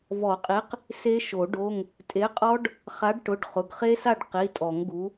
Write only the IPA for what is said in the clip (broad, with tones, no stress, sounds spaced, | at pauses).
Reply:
v ɔ˨˩˦ qʼ i˨˥ q | s e˦˥ ʃ o˨˩˦ ɖ o˧˥˧ ŋ | tʼ e˨˥ qʼ ɔ˦˥ ɖ | χ a˨˥ ɖ ʈ ʊ˩˧˩ ɖ χ ʊ˩˧˩ ɡ χ e˦˥ s a˥˨ ɖ q i˩˧˩ tʼ ɔ˨˩˦ ŋ ɡ u˨˥